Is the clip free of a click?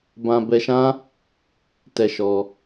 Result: yes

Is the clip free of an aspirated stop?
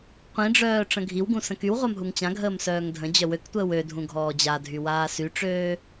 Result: yes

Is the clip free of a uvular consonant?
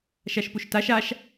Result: yes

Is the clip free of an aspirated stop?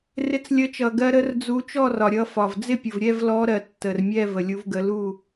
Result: yes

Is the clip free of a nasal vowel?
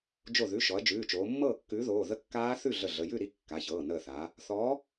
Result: yes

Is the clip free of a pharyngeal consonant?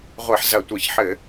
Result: no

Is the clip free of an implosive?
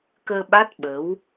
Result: no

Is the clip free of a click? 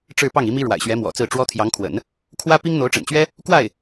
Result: yes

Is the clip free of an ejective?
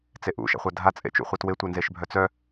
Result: no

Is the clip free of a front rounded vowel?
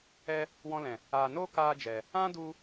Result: yes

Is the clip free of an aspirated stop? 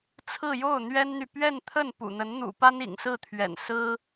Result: no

